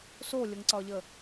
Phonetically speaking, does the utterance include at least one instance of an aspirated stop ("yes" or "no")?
no